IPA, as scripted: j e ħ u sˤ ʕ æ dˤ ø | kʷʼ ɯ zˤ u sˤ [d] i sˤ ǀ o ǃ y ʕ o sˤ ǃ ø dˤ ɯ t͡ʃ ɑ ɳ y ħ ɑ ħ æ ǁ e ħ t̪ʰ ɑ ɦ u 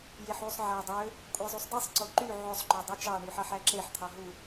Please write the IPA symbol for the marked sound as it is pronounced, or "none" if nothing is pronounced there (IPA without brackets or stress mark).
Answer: d